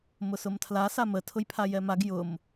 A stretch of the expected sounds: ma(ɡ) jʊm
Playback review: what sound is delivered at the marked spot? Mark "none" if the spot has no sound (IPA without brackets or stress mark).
ɡ